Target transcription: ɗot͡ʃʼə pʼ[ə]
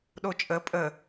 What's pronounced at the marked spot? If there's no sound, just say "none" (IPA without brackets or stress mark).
ə